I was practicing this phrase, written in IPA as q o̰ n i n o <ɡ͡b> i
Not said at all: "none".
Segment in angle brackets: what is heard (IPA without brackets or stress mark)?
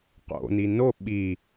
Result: ɓ